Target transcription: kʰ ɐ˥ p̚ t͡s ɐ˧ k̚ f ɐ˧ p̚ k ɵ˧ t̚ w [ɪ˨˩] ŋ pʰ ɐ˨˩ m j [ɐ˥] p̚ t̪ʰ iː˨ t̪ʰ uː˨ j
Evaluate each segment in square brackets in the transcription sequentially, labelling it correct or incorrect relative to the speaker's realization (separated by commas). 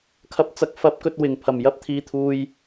correct, correct